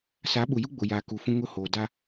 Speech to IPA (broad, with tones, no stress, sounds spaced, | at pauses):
s a˨˦ ɓ u˨ j u˦ ɡ͡b ʊ˨ j a˨ k u˨ f ũ˦ ŋ ʊ˦ h oː˨ d a˦